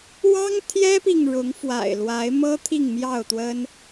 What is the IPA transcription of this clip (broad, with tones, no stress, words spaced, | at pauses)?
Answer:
wɑ˦ŋt̪ʰjɛ˦pi˨ŋ ɻʊ˨˦ŋfwa̰˨˩ɪ̯lwa˨˦ɪ̯mɤ˦ t̪ʰi˥˨ŋmjɑ˥˨ʊ̯t̪wə˦n